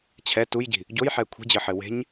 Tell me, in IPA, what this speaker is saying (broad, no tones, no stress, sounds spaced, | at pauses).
t͡ɕʰ ɛ t u j ɟ i̤ | ɟ o j ħ ɛ kʷʰ i̤ d͡ʑ ɘ ħ ɘ w e̤ ɲ